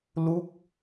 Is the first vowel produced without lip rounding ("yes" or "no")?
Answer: no